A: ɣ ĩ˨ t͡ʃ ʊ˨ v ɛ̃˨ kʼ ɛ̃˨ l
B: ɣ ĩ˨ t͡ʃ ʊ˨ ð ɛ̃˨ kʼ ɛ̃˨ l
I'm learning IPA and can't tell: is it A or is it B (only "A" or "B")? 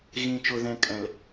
B